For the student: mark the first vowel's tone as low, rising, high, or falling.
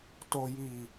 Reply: low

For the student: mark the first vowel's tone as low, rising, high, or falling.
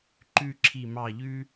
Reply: falling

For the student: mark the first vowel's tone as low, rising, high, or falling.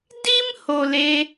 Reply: high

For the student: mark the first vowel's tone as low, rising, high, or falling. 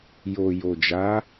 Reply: low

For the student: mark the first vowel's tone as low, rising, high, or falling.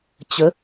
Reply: rising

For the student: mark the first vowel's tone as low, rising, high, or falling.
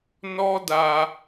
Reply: high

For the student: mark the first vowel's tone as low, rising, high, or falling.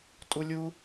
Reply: high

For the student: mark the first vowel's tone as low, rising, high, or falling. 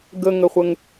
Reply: low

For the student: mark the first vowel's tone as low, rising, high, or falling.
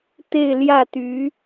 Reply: falling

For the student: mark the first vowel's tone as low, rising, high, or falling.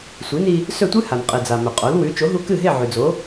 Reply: rising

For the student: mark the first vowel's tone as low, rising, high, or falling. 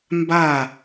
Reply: falling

